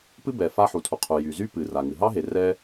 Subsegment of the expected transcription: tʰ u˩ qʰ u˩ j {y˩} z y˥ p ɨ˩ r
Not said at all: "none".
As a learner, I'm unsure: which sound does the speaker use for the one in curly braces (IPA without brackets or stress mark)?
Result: y˩